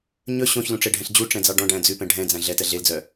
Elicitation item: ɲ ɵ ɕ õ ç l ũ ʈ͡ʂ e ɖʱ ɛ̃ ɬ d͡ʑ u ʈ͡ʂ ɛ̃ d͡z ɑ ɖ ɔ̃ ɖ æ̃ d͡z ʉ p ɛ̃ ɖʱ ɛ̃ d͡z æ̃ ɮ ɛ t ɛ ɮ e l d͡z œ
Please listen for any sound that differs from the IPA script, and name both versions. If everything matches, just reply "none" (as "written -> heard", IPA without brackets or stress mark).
none